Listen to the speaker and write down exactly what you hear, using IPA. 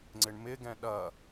ŋ͡ǀ ɪ ɳ m ɪ ɡ ɛ̃ ɗ ɐ

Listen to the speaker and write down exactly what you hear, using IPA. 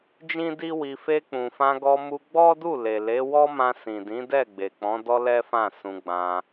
d͡ʒ ĩ˦ d i˦ w i˧ f e˧ k͡p ũ˨ f ã˧ ɡ ɔ˧ m u˧ ɡ͡b ɔ˦ d u˦˨ l e˨ l e˨˦ w ɔ˦ m ã˧ s ĩ˨ d ĩ˨˦ d ɛ˦˨ ɡ͡b e˨ k͡p ɔ̃˨˦ d ɔ˦ l ɛ˦ f ã˦˨ s ũ˧ ɡ͡b ã˧

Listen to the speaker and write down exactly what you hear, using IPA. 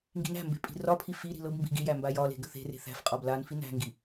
ŋ ɡ i̤ n æ̤ m b e̤ pʼ i̤ r ɒ pʰ i f i ɾ i̤ l ɤ b m b i̤ ɡ i j æ m b a j ɒ l e̤ ɡ ə θ e̤ r e̤ θ æ̤ f qʼ ɒ b l a n f i n æ̤ ŋ ɡ i

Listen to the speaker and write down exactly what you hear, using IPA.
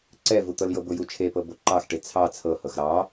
ǀ ɛ v u t̪ ɤ l j ɤ b ʊ j u t͡ʃʰ e p ɤ b o ǃ ɑ x ʈ e t͡sʰ ɑ t͡sʰ ɤ h ɤ x ɾ ɑ

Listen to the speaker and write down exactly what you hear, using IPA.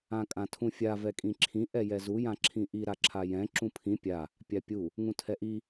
ã kʼ ã tʰ ũ fʲ a v ɛ kʼ ĩ ǁʰ ĩ ʔ ɛ j ɛ z u j ã ǁʰ ĩ ʔ i ɾ a ǁʰ a j ɛ̃ ǁ ũ pʰ ĩ pʲ a | pʲ a pʲ u | ŋ ũ tʰ ɛ ʔ i

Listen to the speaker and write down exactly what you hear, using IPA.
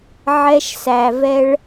ʕ ɛ˦ ʃ s æ˨ v ɛ˦ ɭ

